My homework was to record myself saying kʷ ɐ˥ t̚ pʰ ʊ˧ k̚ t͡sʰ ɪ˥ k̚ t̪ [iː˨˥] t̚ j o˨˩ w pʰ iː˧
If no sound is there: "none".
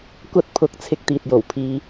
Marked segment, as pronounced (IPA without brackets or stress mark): iː˨